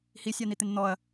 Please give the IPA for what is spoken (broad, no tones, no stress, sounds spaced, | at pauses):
h i sʲ a n̪ i t̪ ɪ n n̪ ɔ ɐ̯